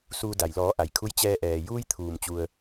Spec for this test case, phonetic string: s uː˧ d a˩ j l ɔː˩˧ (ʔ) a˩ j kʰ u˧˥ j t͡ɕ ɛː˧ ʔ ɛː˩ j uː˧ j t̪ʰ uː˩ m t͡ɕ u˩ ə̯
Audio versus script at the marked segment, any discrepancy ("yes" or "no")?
no